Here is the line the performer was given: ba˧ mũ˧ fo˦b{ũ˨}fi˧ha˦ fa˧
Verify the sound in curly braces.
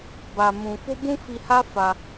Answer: incorrect: ũ˦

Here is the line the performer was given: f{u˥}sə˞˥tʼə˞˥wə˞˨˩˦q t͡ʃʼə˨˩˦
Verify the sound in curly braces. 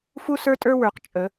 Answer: correct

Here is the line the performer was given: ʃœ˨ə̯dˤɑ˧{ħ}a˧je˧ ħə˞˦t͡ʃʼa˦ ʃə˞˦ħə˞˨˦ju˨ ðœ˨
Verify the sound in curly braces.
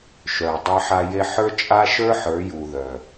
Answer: correct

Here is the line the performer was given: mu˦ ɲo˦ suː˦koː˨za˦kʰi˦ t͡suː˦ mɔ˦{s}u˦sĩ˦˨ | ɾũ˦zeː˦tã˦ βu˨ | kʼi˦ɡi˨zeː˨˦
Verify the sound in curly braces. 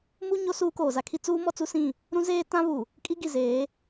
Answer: incorrect: t͡s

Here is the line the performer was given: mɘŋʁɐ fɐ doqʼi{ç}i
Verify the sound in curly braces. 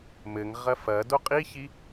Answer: correct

